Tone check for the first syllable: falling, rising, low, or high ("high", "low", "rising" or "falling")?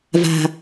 low